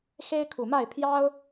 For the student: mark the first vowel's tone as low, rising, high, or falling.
high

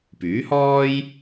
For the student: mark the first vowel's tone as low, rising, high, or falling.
rising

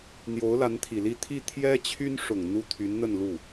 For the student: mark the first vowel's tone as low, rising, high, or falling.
rising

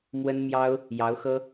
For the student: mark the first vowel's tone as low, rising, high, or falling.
high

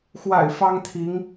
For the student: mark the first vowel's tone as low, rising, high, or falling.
low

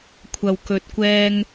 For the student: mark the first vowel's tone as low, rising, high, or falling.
low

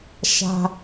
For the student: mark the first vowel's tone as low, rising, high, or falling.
high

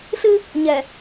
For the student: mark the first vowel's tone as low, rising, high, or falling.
high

